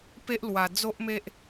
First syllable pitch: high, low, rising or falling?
high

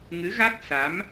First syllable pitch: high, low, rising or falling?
rising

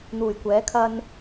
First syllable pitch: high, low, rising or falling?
low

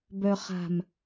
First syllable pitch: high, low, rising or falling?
low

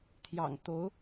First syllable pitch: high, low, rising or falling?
low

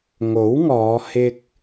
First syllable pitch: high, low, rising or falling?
rising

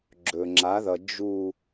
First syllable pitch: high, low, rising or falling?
low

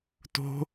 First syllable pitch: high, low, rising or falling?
high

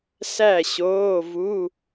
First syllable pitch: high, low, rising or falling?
falling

